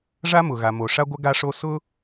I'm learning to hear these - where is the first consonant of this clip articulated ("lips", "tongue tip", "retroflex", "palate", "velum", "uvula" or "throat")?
retroflex